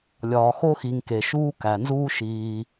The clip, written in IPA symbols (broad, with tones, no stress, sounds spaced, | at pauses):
lʲ ɒː˨ x o˥ x i˨ ŋ k e˩ ʃ uː˥ k æ˩ n z uː˥ ʃ iː˨